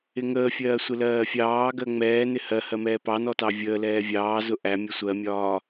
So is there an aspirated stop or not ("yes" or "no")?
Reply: no